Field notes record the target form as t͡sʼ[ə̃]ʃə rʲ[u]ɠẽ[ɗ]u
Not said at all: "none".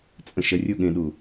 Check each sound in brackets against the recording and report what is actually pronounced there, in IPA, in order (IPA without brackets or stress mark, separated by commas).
ə̃, u, ɗ